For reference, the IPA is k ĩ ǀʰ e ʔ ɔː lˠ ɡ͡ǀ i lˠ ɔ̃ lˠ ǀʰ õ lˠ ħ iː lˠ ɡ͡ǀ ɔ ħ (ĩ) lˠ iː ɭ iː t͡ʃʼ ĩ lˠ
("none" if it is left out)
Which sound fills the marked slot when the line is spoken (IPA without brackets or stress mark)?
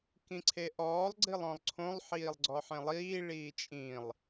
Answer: ẽ